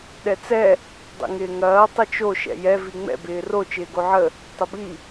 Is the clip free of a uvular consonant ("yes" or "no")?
yes